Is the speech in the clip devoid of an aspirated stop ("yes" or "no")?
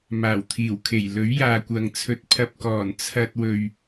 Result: no